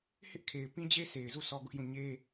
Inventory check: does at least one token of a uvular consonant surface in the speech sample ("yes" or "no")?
no